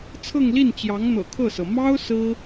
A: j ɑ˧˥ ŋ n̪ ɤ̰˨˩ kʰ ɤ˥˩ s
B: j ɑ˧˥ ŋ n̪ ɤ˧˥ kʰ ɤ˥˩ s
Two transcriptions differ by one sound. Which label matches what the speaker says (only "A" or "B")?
A